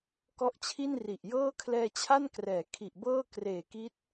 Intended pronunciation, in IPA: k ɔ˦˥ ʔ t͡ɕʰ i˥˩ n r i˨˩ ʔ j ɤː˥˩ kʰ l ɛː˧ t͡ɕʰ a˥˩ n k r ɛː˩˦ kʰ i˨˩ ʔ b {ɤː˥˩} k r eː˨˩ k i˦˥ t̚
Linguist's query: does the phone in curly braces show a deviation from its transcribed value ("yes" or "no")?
no